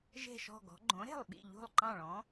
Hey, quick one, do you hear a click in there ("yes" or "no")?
yes